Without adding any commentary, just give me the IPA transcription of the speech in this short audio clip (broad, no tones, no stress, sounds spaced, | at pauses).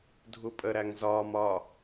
dʱ u pʼ ə ɾ æ ŋ z ɒː m ɒː